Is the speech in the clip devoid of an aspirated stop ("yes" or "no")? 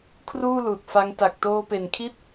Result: no